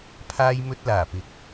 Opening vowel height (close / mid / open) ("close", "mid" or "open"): open